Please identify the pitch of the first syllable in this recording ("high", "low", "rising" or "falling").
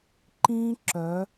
high